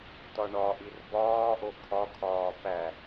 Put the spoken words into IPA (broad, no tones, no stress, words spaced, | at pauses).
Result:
tɒɳɒʔir bɒːʔo kʰɒkʰɒː pæ